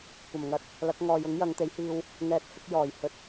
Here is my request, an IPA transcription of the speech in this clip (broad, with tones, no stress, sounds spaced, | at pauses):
kʷ ɐ˨˩ m ŋ ɐ˧ t̚ | l ɐ˨˥ k̚ ŋ ɔː˨ j ʊ˨˥ ŋ j ɐ˨˧ ŋ t̪ e˨˥ j h iː˧ w | ŋ ɛː˨ t̚ h ɪ˧ k̚ j ɔː˨˩ j h ɵ˨ t̚